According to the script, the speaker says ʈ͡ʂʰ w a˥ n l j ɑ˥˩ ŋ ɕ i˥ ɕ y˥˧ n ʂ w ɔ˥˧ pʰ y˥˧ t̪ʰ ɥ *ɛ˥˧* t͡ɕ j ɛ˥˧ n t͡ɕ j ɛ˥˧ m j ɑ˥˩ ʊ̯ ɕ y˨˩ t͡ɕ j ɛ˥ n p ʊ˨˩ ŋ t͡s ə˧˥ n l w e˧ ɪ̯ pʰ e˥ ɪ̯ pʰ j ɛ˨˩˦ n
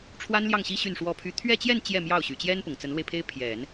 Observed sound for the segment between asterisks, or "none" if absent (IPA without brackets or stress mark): ɛ˥˧